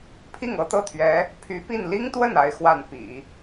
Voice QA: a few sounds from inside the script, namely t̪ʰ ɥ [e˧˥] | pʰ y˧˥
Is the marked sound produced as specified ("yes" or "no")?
no